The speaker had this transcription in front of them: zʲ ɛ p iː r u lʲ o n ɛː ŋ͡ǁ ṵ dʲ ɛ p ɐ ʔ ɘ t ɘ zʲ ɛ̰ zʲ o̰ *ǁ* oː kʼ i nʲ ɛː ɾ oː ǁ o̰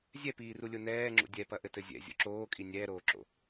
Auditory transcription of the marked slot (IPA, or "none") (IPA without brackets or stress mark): ǁ